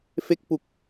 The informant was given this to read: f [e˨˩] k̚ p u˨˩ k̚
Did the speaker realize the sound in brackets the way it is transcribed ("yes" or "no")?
no